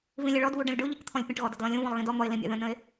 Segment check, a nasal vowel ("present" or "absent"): present